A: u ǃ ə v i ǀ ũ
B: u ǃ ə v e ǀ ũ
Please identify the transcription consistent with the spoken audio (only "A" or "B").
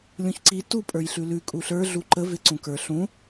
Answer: B